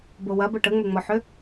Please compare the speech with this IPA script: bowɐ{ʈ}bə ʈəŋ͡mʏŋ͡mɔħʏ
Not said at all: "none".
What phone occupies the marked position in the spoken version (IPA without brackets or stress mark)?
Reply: none